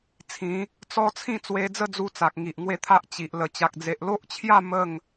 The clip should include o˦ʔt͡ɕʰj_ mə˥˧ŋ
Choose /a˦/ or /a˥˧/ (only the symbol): a˥˧